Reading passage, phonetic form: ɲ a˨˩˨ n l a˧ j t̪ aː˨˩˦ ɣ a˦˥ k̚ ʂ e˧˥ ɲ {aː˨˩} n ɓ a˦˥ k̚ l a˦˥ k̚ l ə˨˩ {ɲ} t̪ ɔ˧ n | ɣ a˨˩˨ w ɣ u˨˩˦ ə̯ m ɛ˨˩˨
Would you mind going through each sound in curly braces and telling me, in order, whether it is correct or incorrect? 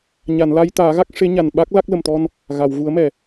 incorrect, incorrect

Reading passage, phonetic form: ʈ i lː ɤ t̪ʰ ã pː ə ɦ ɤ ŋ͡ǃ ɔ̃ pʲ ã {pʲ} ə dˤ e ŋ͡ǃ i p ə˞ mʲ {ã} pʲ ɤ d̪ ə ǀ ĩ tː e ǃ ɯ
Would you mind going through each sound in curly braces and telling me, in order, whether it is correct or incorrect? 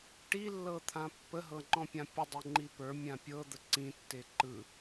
correct, correct

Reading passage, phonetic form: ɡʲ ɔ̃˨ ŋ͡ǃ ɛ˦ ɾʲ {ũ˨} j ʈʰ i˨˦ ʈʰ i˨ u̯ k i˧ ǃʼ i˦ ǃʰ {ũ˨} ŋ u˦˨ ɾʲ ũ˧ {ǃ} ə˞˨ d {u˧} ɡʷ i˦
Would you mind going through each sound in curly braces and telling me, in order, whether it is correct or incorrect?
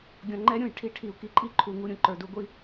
correct, incorrect, correct, correct

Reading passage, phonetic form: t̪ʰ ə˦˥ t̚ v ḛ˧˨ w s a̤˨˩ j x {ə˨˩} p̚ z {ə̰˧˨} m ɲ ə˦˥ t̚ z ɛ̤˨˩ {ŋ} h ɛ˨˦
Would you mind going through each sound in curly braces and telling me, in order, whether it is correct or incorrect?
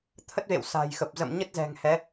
correct, correct, correct

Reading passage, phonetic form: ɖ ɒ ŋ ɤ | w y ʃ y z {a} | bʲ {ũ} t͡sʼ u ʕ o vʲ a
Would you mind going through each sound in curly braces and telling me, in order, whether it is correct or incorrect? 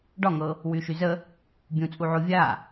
incorrect, correct

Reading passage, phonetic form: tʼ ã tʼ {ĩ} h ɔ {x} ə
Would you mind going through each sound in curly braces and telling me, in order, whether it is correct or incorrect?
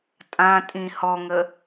correct, incorrect

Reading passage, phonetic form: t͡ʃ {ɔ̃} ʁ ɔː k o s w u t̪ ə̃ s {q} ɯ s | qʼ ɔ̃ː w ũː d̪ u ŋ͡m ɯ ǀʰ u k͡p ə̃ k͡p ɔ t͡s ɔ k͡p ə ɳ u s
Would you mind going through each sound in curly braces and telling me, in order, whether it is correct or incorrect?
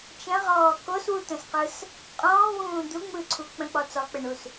incorrect, correct

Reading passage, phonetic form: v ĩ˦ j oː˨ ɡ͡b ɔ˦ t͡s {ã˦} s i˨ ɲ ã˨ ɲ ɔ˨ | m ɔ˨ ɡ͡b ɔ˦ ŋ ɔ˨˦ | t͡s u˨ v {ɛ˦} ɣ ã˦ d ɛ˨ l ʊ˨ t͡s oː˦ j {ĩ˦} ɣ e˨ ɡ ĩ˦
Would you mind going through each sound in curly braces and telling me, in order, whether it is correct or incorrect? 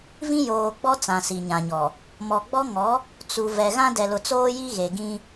incorrect, incorrect, incorrect

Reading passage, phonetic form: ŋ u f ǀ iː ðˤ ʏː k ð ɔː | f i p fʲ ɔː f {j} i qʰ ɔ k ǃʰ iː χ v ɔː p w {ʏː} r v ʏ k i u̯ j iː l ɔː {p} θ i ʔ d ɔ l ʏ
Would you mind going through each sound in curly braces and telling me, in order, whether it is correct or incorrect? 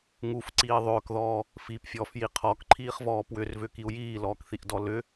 correct, incorrect, incorrect

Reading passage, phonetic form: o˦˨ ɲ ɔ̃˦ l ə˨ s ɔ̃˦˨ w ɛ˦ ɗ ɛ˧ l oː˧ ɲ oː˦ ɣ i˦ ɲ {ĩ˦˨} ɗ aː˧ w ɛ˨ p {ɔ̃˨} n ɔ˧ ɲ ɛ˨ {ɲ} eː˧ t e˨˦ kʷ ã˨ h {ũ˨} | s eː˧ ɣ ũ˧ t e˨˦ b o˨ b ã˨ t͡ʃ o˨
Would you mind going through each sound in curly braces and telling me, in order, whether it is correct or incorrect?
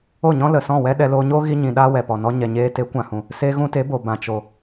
incorrect, incorrect, correct, correct

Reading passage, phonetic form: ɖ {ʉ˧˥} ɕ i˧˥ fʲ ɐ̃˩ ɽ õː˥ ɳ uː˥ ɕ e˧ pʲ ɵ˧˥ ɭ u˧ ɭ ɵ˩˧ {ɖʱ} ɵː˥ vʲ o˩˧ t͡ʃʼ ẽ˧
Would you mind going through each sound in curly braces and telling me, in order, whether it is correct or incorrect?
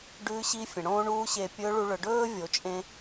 correct, incorrect

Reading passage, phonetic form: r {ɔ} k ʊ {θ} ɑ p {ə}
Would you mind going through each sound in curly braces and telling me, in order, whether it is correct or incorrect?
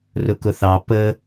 incorrect, correct, correct

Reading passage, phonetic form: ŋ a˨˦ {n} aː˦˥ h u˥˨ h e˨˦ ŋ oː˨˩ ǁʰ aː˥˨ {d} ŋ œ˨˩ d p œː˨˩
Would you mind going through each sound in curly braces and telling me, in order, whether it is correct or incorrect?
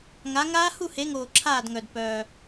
incorrect, correct

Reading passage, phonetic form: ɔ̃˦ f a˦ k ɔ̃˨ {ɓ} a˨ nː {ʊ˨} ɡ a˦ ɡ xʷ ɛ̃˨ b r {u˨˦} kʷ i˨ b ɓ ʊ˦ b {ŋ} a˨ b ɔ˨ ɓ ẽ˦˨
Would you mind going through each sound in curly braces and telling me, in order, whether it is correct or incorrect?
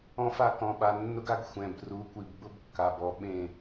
correct, incorrect, correct, incorrect

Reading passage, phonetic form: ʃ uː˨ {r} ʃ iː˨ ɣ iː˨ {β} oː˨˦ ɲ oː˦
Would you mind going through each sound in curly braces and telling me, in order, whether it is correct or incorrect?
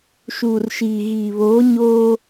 correct, correct

